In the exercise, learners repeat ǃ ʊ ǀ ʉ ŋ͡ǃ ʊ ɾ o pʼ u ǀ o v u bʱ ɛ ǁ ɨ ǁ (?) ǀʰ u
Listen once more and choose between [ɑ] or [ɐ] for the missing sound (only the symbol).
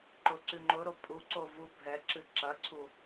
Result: ɐ